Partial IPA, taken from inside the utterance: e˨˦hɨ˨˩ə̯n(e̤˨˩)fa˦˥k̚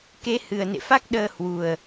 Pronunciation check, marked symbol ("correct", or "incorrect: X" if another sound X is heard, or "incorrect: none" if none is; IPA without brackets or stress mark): incorrect: ḛ˧˨